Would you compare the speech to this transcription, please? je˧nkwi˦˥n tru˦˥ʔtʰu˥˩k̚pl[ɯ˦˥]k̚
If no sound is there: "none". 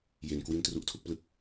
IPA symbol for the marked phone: ɯ˦˥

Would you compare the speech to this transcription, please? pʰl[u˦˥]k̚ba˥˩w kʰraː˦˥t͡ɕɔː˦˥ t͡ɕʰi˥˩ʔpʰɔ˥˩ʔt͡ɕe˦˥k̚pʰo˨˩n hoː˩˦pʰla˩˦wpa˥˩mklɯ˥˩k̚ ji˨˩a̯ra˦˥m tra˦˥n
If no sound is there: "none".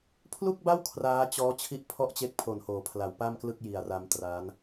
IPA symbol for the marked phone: u˥˩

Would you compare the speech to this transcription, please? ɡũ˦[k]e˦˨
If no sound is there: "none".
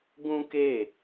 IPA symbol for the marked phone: k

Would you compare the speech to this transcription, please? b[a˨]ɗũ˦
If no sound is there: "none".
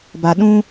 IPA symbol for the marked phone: a˨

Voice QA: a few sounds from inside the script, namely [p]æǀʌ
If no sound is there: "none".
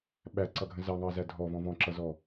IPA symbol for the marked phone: ɓ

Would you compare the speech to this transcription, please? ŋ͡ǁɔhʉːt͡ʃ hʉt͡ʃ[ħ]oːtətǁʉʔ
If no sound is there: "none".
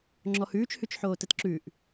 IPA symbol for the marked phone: ħ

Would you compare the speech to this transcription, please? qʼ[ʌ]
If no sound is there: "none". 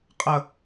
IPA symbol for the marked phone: ʌ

